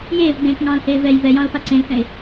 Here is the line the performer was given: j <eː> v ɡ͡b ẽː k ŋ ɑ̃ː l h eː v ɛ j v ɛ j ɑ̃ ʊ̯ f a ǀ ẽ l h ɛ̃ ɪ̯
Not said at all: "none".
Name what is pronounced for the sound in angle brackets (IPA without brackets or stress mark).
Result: eː